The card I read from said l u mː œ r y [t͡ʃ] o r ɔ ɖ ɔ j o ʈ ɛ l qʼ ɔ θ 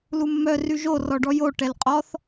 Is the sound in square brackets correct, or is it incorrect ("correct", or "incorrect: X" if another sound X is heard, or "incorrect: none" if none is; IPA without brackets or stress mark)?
incorrect: ʒ